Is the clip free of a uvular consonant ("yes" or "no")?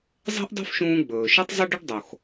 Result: yes